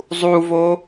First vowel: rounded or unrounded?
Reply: rounded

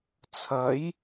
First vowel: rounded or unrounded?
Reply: unrounded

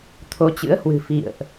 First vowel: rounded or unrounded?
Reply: rounded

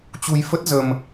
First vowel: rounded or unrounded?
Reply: rounded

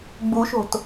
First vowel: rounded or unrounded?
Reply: rounded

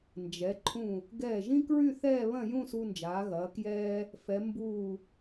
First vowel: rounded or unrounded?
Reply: unrounded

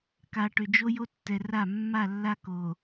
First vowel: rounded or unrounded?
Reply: unrounded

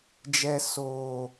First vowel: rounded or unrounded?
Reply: unrounded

